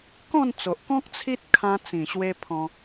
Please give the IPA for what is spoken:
kɔ̃˥˧nt͡so˨ʔkɔ̃˦k̚ t͡sʰi˦t̚ kʰã˧t͡sĩ˨˩ ɕwe˧pʰɔ̃˧

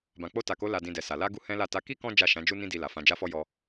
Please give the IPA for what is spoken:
bã˨k͡po˧ta˨ko˨˦ la˧dĩ˧dɛ˨sa˨ la˧ ɡu˦hɛ̃˦la˦˨ ta˨˦ki˦ kɔ̃˦ d͡ʒa˦˨ʃã˨˦d͡ʒu˦ nĩ˦di˧la˨ fã˧d͡ʒa˦fɔ˦ jɔ˧

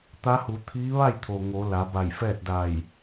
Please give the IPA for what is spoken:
t̪a˧˥hu˩˧t̪ʰiː˧˥ ʋa˥˨j t̪ʰo˩ ŋo˩˧ la˩˧ba˧˩jfɛː˥˨t̚da˧˩j

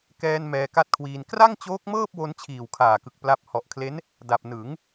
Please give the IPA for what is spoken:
kɛː˧n mɛː˧ka˥˩t̚kʰwiː˧n kra˥˩ŋt͡ɕoː˦˥k̚mɤː˥˩p̚wo˧n t͡ɕʰiː˨˩wkʰaː˨˩kɯ˨˩k̚ pla˦˥p̚ hɔ˨˩ʔkʰle˦˥n | da˨˩p̚ nɯ˩˦ŋ

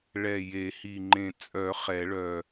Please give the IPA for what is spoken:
ɭɛ˨˩ je˨˩˦hi˨˩ŋ͡ǃẽ˨˩ t͡sʼœ˨˩˦ χɛ˨˩˦ɭœ˨˩

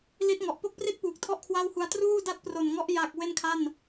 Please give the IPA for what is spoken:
li˦˥t̚ŋɔ˨˩ʔ po˥˩k̚pri˥˩t̚puː˨˩k̚ tʰɔ˥˩ʔkʰwa˥˩whu˧a̯ truː˥˩da˥˩t̚pro˨˩nŋɔ˦˥ʔ ja˨˩k̚ we˥˩nkʰa˥˩n

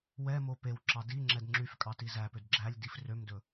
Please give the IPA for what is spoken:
wɛmo pewǁɑ di ŋ͡ǁɛdŋ͡ǁyfkʼɑ tizæpød ɡ͡ǁælʲ difrømdɵ

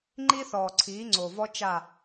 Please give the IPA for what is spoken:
ŋ͡ǃi˦θɔː˨ǀʰiː˨˦ ŋ͡ǀo˨vɔ˦ t͡ʃa˦˨

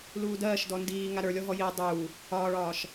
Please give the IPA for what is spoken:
luːdɜːʃdɔ ndiː ŋaɾə˞lʲɔɦɔ ji dˤuː | ɒːɭɒːʃ

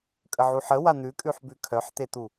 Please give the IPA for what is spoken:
kʼəʕuħə wan̪ʉkʼʉħ bʉkʰœħt̪et̪u

